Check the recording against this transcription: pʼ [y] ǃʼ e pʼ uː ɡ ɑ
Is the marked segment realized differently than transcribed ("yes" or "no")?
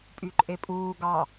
no